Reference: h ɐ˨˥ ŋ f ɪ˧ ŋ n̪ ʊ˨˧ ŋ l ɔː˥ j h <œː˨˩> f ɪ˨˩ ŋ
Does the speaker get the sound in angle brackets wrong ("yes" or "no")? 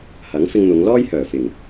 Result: no